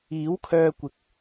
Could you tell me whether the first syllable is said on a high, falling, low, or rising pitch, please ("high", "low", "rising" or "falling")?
rising